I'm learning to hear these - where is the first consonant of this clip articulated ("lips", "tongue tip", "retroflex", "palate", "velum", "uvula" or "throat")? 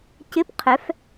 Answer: palate